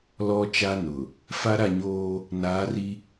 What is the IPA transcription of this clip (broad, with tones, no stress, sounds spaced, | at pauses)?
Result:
l ɔ˨ t͡ʃ a˨ n ʊ˨ | f a˦ ɾ a˦˨ ɲ oː˦ | n aː˨˦ r i˦